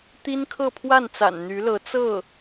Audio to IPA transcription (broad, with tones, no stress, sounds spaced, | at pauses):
t̪ i˥ n kʰ ɤ˥˧ pʰ w a˥˩ n t͡s a̰˨˩ n n̪ y˧˥ l ɤ˧˥ t͡s ɤ˥˩